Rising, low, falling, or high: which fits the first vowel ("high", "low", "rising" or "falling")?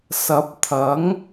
rising